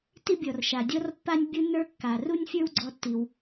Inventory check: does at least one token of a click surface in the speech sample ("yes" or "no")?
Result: yes